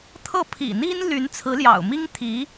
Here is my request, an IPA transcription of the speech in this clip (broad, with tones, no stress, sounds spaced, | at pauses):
t̪ʰ ɤ˥˩ pʰ ḭ˨˩ n̪ i˥ n l y˧˥ n t͡sʰ ɹ̩˧˥ l j ɑ̰˨˩ ʊ̯ m i˥ ŋ t̪ʰ i˧˥